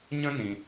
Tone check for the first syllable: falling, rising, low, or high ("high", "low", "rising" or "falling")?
high